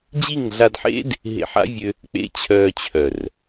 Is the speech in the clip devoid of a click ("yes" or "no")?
yes